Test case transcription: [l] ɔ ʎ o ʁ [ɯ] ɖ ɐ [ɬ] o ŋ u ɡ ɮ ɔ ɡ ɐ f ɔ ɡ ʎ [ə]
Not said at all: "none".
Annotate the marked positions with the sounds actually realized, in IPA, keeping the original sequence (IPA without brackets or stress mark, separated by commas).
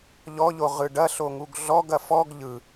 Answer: ʎ, ɯ, ɬ, ɯ